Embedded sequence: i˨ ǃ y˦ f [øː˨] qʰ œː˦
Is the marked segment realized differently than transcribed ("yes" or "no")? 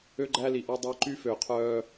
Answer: no